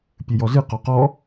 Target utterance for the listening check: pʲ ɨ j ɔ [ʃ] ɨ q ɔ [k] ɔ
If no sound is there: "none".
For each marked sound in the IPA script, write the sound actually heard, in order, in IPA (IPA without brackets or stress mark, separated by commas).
z, q